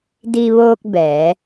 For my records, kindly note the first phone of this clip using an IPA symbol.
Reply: d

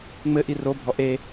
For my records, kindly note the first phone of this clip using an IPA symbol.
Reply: ŋ͡m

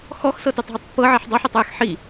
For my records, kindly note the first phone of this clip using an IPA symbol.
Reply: x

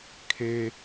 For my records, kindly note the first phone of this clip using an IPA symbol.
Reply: kʰ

